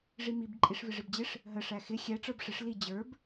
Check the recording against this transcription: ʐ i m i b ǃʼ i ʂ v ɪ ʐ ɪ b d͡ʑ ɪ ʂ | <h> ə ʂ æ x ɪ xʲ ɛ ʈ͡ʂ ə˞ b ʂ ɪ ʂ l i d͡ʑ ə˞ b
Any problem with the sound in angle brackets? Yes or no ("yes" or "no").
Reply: yes